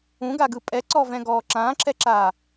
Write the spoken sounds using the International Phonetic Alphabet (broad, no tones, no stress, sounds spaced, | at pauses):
ũ ɡ a ɡ ɯ pʼ ɛ ǀ ɔ v ɛ̃ ɡ ɔː ǁ ãː ǁ ɛ ǁ aː